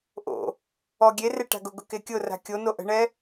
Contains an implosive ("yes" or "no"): no